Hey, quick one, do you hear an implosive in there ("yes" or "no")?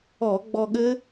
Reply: yes